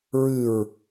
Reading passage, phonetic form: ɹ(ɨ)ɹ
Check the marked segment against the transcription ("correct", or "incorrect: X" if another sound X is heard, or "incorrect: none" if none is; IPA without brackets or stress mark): correct